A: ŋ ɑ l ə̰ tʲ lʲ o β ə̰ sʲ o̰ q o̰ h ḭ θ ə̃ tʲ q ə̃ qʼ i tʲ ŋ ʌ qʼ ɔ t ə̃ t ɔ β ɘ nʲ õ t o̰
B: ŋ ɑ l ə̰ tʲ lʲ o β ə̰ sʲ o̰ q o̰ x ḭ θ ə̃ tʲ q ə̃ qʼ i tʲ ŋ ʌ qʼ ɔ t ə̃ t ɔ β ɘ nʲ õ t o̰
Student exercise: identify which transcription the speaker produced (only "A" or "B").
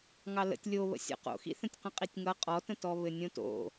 B